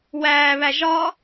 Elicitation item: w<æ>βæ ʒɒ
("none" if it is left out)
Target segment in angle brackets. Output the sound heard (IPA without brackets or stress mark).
æː